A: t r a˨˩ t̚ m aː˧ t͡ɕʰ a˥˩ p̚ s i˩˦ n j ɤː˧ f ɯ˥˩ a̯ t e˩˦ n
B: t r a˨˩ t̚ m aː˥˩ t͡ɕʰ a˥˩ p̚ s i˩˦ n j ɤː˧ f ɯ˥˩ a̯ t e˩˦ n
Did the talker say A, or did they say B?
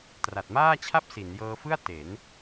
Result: B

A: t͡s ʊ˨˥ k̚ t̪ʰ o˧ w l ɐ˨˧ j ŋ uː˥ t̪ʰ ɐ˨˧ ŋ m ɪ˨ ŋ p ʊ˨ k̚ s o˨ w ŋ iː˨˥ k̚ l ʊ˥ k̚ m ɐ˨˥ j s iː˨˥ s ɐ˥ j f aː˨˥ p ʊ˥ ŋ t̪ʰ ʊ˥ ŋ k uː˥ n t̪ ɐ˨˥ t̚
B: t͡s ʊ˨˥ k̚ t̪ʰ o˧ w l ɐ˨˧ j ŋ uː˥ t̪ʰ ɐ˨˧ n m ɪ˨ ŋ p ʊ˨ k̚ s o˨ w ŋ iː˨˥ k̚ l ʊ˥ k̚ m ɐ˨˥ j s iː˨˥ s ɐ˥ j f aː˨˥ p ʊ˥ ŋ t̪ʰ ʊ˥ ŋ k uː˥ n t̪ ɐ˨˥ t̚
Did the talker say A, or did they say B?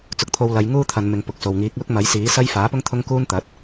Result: B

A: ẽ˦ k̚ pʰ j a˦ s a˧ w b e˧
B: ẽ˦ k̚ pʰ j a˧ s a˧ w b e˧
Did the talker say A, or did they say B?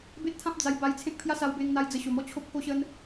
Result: A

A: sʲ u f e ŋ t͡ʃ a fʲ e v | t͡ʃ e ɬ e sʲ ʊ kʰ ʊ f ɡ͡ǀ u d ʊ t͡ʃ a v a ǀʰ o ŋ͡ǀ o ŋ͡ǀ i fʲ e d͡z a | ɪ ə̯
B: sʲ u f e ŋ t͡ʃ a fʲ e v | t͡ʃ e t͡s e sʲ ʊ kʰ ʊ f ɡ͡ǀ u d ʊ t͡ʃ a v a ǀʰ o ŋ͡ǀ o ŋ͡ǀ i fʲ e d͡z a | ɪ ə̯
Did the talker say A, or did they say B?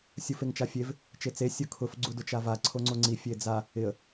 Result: B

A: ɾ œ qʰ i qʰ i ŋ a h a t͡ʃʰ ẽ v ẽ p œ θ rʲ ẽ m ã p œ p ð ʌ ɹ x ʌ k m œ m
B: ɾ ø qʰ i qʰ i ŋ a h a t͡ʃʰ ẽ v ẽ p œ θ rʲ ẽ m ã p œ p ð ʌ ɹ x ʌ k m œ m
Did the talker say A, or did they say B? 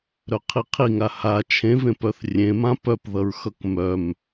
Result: A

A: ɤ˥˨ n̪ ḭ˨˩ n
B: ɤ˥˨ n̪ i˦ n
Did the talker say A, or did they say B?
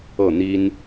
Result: B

